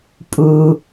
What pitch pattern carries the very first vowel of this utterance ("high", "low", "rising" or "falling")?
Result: low